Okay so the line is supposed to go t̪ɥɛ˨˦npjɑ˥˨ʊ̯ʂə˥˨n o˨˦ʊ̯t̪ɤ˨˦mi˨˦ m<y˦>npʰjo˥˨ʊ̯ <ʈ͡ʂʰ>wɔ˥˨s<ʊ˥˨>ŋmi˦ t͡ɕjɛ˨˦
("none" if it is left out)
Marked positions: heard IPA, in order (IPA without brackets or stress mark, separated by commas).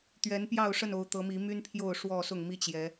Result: y˦, ʂ, ʊ˥˨